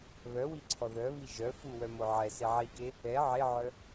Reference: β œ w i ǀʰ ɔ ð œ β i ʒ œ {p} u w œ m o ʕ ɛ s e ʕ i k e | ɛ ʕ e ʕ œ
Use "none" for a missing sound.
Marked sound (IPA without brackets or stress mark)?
f